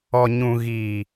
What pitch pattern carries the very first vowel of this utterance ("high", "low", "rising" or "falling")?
low